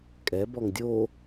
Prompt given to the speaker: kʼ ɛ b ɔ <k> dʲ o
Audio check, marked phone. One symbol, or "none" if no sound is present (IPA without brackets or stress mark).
ŋ